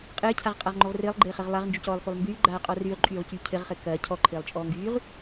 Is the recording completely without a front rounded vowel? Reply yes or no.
no